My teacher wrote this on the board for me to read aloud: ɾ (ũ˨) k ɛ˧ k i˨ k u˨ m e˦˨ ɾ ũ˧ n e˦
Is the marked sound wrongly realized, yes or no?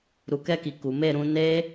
yes